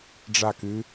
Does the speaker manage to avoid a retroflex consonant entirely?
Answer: no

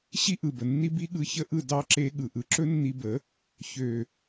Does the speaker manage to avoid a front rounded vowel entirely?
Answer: no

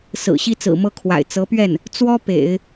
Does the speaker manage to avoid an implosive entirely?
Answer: yes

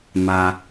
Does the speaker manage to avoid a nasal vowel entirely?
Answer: yes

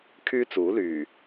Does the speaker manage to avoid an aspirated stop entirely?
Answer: no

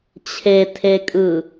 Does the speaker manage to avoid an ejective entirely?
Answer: no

